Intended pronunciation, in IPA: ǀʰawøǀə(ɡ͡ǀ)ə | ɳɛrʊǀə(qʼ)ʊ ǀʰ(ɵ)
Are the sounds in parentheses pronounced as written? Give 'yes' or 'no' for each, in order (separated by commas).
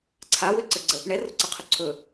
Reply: yes, no, yes